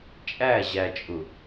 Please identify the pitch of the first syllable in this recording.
falling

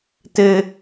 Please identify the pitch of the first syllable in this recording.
low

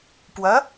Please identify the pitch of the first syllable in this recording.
rising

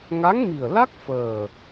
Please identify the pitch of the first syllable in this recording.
rising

